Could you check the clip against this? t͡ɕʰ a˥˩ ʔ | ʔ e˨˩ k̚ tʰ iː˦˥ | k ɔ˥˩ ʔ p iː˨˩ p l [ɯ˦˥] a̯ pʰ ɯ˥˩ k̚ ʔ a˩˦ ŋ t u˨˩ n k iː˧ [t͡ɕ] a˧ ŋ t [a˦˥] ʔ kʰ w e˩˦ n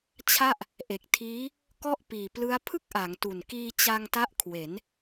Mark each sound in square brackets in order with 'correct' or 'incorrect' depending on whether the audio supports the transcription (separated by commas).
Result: correct, correct, correct